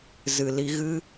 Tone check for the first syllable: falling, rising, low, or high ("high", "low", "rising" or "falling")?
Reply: low